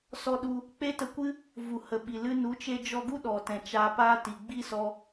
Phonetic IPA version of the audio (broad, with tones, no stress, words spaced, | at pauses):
sɔ˧ɗu˧ | k͡pe˦tə˧kʷɨ˦ | vu˨hə˨ɓi˨ lɨ˧ nu˨˦t͡ʃe˧d͡ʒɔ˧ɡu˦ ɗɔ˨tɛ̃˨ t͡ʃaː˧ paː˦ti˨ ɡ͡bi˦sɔ˧